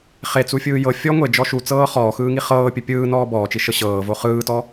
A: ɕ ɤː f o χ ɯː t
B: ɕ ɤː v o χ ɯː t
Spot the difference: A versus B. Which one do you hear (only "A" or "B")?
B